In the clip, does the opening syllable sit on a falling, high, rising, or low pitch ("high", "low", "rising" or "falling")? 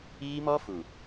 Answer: high